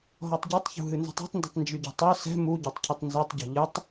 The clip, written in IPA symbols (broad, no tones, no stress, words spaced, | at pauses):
ɦɔtˤɟutˤçṳ ɦɨnzɛ̤tˤa̤tˤndɛ̤tˤ nd͡ʒyɟṳtˤœ sɛ̤ muɟɔtˤ cʰɨtˤnzœtˤɟɔ̤ ʎɨtˤ